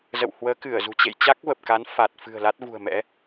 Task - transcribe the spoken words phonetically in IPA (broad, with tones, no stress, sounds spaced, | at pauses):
z ə̰˧˨ w h w əː˨˦ k ɨ˧˩ ə̯ z ṳ˨˩ t͡ɕ ḛ˧˨ j t͡ɕ a˦˥ k̚ v ə˨˩ p̚ k a˨˦ n f a˨˩ t̚ f ɨ̤˨˩ ə̯ l a˦˥ t̚ v ṳ˨˩ ə̯ m ɛ̰˧˥